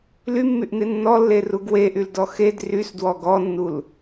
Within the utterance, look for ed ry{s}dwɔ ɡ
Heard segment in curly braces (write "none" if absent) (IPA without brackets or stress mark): s